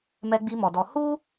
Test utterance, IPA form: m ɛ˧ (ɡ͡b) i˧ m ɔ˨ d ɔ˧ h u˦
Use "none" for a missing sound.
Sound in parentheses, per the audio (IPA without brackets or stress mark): ɡ͡b